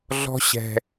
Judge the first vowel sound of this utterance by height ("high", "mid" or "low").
mid